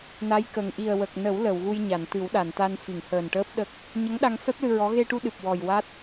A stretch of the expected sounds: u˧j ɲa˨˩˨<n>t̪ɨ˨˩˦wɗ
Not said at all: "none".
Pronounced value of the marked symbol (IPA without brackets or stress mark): n